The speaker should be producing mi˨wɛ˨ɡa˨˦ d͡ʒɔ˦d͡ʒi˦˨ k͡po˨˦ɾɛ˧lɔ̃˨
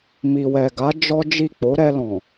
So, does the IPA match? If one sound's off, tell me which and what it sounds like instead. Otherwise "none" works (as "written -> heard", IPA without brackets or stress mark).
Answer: none